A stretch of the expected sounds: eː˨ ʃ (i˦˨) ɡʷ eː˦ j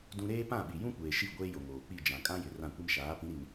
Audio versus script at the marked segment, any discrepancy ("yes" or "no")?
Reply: no